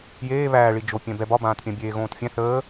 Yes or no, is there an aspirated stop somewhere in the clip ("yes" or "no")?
no